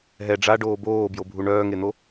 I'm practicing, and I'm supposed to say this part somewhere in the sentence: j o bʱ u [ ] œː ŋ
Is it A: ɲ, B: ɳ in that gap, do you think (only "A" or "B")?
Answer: B